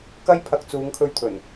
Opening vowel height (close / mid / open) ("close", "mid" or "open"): open